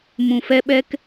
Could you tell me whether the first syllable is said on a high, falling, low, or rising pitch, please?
low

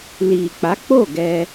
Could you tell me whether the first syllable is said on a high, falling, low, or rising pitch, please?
low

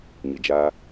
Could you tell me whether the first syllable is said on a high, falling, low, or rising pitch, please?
low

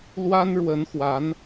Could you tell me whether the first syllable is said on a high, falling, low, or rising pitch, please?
high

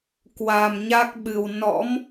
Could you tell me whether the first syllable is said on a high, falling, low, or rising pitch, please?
low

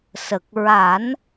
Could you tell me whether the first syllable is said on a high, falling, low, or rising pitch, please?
low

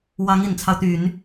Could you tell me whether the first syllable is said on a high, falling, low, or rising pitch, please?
rising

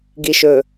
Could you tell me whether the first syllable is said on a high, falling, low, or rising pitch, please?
low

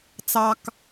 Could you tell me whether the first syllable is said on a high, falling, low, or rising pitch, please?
high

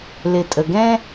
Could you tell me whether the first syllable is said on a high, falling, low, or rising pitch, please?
low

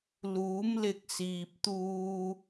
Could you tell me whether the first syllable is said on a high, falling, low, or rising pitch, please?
rising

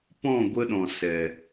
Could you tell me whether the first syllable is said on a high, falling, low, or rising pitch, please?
falling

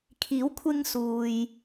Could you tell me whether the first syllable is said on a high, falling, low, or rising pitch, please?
rising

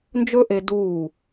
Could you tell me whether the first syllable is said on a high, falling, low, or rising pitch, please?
high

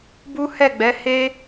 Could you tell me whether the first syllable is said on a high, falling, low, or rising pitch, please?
high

